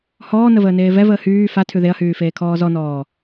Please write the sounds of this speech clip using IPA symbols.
h ɔː n ə v əː n eː v ɛ v əː h yː f a tʰ ʉ ð e ɐ̯ h yː f eː kʰ ɔː z ɔ n ɔː

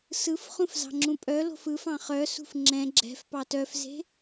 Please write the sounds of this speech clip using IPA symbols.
s ɯ f χ ũ f z ɑ̤ ŋ͡ǁ ũ pʼ œ l o̤ f ɯ f ɑ̃ χ œ s ṳ f ŋ͡ǁ ɛ̃ ɡ͡ǁ ɛ̤ f p ɑ t œ f z e̤

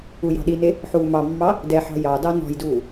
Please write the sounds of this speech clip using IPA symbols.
u j ɑ̤ ɗ i n e | ħ uː m ɑ mː ɑ | d ɛ ħ ɑ̤ j ɑ d ɑ n ɔ̤ j d uː

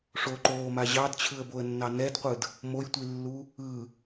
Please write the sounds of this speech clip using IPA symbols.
ʂ o ǃ oː m a ʑ ɑ d t͡ɕʰ ɯ ə̯ b o ə̯ nː ɑ n ɛ d qʷ ɯ d | m o j tʷ i lː u | ɯ

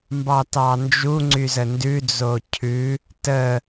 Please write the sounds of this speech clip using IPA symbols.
m b ɑ t ɑ n d͡ʒ u ŋ͡ǀ y z ə n d ʉ d͡z o cʰ ʉ | t ə

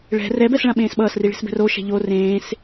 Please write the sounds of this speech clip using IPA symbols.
ɭ ɛ̤ r ɛ b ɛ s ɭ ã ɓ ẽː s ɓ ʌː s r i ɭ e̤ s b ɛ̤ r o ʃ ɛ̤ ʎ o r ẽː s

